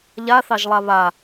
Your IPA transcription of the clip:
ʎa θɑʒlˠaβa

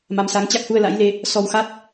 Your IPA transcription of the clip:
ma˨˦msa˨˦ŋ t͡ɕa˦˥k̚hu˧ə̯la̰˧˥jle˧ | sɔ˧wxa˦˥t̚

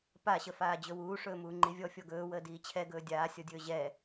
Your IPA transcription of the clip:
paɕəfaː d͡ʑɵwuː ʂɵːmuːŋ͡ǃivʲɔ fʲɔɡɵːwəː diːt͡ɕʰɛɡɵː dʲaːsʲɔdʲɵː ʑɛ

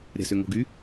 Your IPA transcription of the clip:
ɾʲa̤sʏŋo̤ɡy

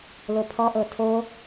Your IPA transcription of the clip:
lopʰɔʔɤ tʰo

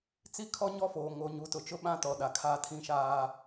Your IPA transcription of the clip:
t͡si˦kʰɔ˦ɲɔ˦foː˨ ŋo˨ɲu˨˦ tʊ˨t͡ʃʊ˦ɓã˦ tɔ˨ɗa˨kʰaː˦˨ tʰĩ˦ʃaː˦

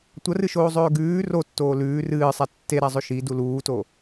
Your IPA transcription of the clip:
tʷɐrɨʃoːzˤɵː ɡʉː rotːoː lʉː rɨːsˤa tːeɾazˤɵ ʃidu luːto

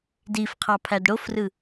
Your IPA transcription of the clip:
difqʰɑ pʰædɽofrɯ

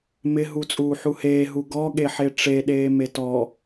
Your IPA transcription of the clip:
mɪɦu t͡sʼuːħuheː ɦuɡɔ ɠeħeʈ͡ʂeɗeː metɔ

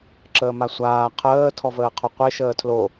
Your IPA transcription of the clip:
ǁəːmasʷaː qʰəː tʰɔvəːqʰoqʷe ʃəːtʰlo

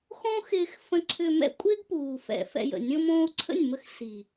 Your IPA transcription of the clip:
xõ˦xɪː˧xfə̃˧ ǀʰʏ˧mɛ̰˦kʷʼɪː˦ɡpuː˨ fɛ̰˨ fɛ̰˧jə̰˨ nʲõ˧mõː˧u̯ǀʰə̰˦˨nʲmə˧x si˨

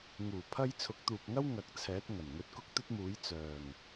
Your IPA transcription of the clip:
ŋuː˨˩pʰɐ˧j t͡sʰʊ˨˥k̚t̪uː˨p̚ŋɐ˥w ŋɐ˨˥k̚ t͡sʰɛː˨˥t̚ ŋɐ˨˩nŋɵ˧t̚kʊ˥k̚ t̪ɵ˥t̚muː˨˥j t͡sœː˨˩ŋ

